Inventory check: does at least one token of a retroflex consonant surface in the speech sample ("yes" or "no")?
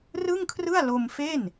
no